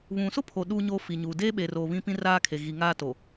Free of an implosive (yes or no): no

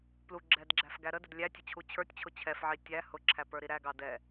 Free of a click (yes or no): no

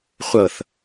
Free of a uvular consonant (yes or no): no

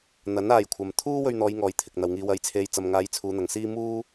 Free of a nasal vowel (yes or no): yes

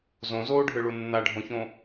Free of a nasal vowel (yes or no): no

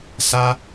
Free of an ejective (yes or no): yes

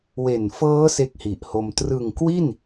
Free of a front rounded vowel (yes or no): yes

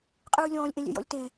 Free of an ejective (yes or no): no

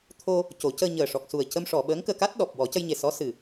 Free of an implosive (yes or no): no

